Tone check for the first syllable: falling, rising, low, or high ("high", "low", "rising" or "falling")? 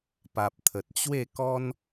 low